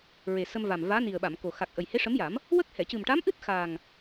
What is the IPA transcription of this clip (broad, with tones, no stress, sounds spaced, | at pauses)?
ɹ e˨˩ s ə˧ m v a˨˩ m v aː˧˥ n i˨˩ ə̯ ɓ a˨˩˨ m k o˨˩ x a˨˩ k̚ ʔ ə˨˩ j h e˧˥ ʂ ə˧˥ m j a˨˩˦ m | w ə˦˥ k̚ h ɛ˨˩˨ c ɨ˨˩ m ʈ a˧˥ m ʔ ɨ˦˥ t̚ x aː˨˩ ŋ